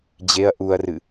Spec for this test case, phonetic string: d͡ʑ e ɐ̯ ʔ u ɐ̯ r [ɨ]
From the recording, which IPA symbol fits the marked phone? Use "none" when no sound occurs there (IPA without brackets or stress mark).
ɨ